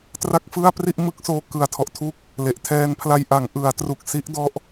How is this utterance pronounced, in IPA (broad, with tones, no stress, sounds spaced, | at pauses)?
t r a˥˩ k̚ f ɯ˥˩ a̯ p r i˥˩ ʔ m ɯ˦˥ k̚ s oː˧ k ɯ˨˩ a̯ tʰ ɔ˨˩ ʔ tʰ u˦˥ k̚ | l e˨˩ ʔ tʰ ɛː˧ n pʰ l a˧ j ʔ a˩˦ ŋ ʔ ɯ˩˦ a̯ t r u˨˩ k̚ s i˦˥ ʔ d ɔ˦˥ ʔ